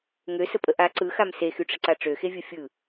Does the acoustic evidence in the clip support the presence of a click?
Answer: yes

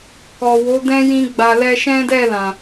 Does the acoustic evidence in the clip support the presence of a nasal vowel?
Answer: yes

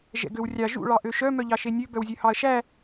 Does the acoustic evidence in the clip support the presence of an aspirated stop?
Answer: no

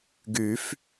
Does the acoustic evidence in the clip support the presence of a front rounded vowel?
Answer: yes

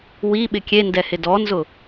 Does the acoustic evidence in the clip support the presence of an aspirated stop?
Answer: no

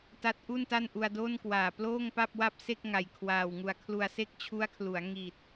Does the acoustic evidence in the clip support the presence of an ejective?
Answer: no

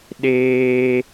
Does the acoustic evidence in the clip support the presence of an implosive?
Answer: yes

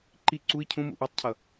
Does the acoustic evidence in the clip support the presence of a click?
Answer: yes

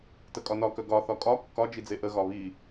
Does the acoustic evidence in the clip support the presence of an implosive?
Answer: no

